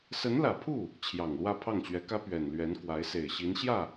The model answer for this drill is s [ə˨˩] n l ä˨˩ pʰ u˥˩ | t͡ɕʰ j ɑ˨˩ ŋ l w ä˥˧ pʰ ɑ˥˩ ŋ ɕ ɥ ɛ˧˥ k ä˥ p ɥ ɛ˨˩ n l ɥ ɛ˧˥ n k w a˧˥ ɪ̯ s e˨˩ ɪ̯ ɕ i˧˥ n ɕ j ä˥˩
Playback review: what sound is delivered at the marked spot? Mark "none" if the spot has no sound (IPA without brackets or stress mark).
ə˧˥